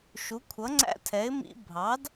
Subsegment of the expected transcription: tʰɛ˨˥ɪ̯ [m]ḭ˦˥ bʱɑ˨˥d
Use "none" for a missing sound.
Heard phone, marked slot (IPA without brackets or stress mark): m